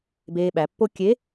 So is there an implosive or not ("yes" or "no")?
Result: yes